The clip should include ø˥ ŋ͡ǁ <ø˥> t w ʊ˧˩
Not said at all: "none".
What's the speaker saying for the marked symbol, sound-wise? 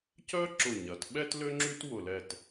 y˥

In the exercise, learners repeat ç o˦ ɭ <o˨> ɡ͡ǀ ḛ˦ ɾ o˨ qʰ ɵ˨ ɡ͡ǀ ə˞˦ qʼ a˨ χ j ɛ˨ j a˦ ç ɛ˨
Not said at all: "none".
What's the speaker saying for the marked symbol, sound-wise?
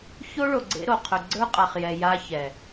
o˨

